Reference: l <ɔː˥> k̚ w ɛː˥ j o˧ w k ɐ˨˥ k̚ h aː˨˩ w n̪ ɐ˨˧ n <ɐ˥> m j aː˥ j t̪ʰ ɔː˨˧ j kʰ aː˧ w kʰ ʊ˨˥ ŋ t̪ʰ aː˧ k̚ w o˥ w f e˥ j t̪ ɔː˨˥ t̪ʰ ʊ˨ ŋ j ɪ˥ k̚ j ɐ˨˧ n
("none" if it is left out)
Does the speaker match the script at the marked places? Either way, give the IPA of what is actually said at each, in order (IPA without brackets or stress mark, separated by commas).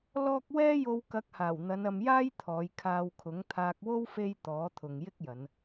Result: ɔː˥, ɐ˧